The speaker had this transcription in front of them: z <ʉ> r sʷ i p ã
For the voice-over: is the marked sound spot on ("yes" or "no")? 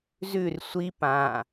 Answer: yes